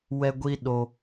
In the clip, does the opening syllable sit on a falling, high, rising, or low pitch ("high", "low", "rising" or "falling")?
high